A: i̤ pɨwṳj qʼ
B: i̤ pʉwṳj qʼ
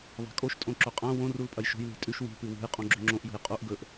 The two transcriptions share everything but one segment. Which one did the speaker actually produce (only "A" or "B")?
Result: A